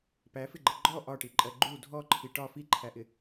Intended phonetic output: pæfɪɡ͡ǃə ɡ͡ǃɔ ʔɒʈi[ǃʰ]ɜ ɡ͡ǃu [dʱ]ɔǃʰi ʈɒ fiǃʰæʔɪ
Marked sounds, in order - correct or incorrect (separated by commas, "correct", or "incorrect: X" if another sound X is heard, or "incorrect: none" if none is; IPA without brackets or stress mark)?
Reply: incorrect: ǃʼ, correct